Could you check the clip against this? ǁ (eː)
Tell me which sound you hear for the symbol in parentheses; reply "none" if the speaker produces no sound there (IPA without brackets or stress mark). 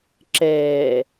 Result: eː